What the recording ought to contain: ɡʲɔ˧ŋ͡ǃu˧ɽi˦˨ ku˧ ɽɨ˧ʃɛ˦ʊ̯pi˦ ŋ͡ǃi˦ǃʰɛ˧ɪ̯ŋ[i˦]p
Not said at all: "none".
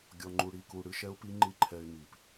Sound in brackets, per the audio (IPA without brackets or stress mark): i˨